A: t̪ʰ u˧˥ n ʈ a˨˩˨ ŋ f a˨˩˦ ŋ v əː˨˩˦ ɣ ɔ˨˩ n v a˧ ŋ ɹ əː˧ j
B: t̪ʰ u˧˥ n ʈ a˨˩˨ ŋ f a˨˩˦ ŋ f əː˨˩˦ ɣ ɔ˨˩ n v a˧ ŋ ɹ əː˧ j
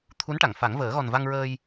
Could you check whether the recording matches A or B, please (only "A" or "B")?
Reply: A